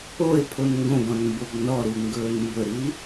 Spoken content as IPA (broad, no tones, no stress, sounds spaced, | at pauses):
o e̯ pʰ o n ŋ ɡ õ ɡ ɔ̃ n m b o ɡ n ɔ ɾ u ŋ ɡ ɵː n m b ɵ ɾ i